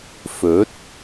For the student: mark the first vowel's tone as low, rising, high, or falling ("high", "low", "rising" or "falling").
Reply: rising